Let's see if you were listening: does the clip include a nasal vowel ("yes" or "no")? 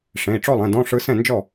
yes